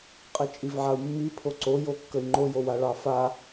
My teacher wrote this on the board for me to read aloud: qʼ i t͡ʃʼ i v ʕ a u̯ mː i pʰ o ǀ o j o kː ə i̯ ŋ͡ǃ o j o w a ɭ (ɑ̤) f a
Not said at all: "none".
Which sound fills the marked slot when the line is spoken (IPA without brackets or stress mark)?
ɑ